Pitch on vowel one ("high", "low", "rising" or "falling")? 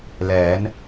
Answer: rising